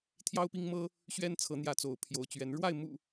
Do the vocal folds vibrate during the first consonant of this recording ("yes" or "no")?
no